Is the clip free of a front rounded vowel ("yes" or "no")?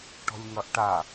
yes